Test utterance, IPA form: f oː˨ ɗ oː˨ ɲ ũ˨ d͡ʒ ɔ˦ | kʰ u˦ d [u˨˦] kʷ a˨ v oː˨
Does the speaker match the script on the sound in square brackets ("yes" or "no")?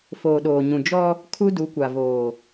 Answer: yes